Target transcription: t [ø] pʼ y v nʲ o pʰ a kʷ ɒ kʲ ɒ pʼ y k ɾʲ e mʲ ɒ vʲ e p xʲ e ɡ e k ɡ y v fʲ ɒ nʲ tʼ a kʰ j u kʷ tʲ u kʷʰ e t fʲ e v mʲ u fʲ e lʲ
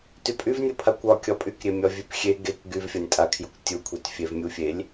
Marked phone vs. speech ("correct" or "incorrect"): incorrect